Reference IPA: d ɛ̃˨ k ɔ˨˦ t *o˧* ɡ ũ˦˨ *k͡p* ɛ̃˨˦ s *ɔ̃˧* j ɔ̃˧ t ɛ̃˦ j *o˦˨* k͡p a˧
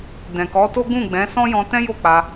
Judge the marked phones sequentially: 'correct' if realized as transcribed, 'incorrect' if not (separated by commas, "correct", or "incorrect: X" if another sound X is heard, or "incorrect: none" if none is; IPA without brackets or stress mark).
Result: incorrect: o˦, incorrect: ɡ͡b, incorrect: ɔ̃˦, correct